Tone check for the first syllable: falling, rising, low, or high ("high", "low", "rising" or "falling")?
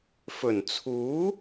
low